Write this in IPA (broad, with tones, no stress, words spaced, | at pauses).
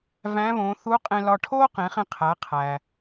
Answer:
væ̃˧˥ βõː˩˧θu˧˥ qʼẽ˧lɒ˧ ʈʰoː˥qẽ˩˧χẽ˧qʰæ˩˧ qʰæ˩